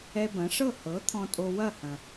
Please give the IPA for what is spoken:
ɛ˧ b ɐ̃˩˥ ʂ ɤ˥˩ h ɤ˩˥ t̪ʰ ɔ̃˧ tʼ o˧ w ɐ˥˩ h ɐ̃˩

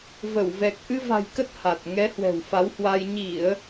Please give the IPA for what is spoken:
v ə˧˩ w v ɛ˨˩ k̚ ʔ ɨ˧ v a̤˨˩ j k ə˦˥ t̚ h a˨˩ t̚ ŋ ɛ˨˦ h w ɛ̤˨˩ w f a˨˦ w h w a˧ j ɲ i˧˩˨ ə̯

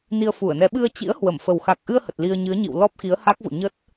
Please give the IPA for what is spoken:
n i˧ ə̯ f u˧˩ ə̯ n ɛ˨˦ ɓ ɨ˧ ə̯ t͡ɕ ḭ˧˥ ə̯ h w ə˧˩ m f ə˨˩ w x a˨˩ k̚ ʔ ɨ˧ ə̯ h ə˨˩ t̚ l i˧ ə̯ ɲ ɨ˨˦ ə̯ ɲ ḭ˧˨ w l ɔ˦˥ p̚ x i˨˦ ə̯ h a˦˥ k̚ v o̰˧˨ ɲ ə˦˥ t̚

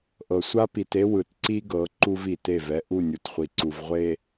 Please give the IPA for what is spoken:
ʔ ɤ˨ sʷ a˦ p i˨ t e˦ w ɯ˨ t ǀ i˦ ɡ ɤ˨˦ ǃ u˦ v i˨ t e˦˨ v ɛ˦ ʔ u˦˨ nʲ u˨ t χʷ i˨ ǀ u˨ v ʁʷ e˨

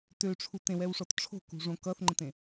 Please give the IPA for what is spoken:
t ø ʈ͡ʂʰ u t ẽ w ɛ w ʂ ɔ t ʈ͡ʂʰ o̤ k ṳ ʐ õ k ʌ θ ŋ͡ǃ ə̃ t ẽ

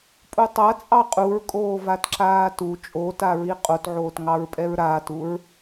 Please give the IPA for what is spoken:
pʼ u tˤ a t͡sʼ ɑ qʼ u ɹ kʼ oː v a t ǁ aː t u t͡ʃʼ o t a ɹ i qʼ o t ʕ oː t ŋ ɑ ɹ pʼ ɛ ɹ ɾ aː t u ɹ

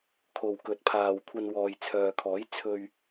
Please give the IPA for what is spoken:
kʰ o˨ w k ɵ˨˥ t̚ pʰ aː˨ w kʷʰ ɐ˧ n w ɔː˨ j t͡sʰ œː˨ kʰ ɔː˨˥ j t͡sʰ ɵ˨ ɥ

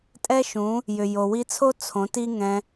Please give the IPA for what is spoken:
tʼ ɛ˦ ʃ ũ˨˦ | j ʏ˨ j o˨ w i˧ t͡sʰ o˦ t͡sʰ õ˨˦ t i˦ ŋ ɛ̃˧

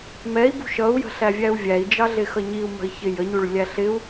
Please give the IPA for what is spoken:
m ɛ i̯ b ṳ ʃ ʌ u̯ j ə̤ ɬ æ vʲ æ u̯ vʲ æ i̯ d͡ʒ ɑ ɮ ɪ x ʌ ɲ i u̯ m ə̤ i̯ ç ɪ j ə ɲ u ɭ lʲ æ ɬ ɪ u̯

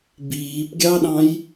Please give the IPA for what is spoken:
b iː p ɡʲ ɑ ɗ ɑ̃ j

